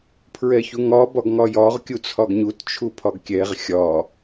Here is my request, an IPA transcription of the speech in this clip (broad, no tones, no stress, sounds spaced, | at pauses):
pʰ ɹ ɛ ç u ŋ ɒ b ɒ ɡ ŋ ɒ j ɒ ʁ kʲ u t͡sʰ ɒ ɡ ɲ u t t͡ʃʰ u pʰ ɒ ɡ kʲ ɛ ʁ xʲ ɒ